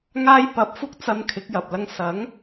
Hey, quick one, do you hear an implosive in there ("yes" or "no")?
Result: no